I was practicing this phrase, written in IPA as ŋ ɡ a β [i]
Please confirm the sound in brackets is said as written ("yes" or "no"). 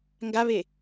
no